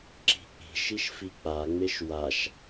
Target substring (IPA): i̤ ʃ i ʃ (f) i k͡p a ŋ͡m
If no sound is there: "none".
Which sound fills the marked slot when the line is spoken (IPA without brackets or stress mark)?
f